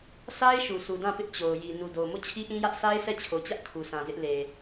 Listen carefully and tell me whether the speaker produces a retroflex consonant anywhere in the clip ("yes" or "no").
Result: no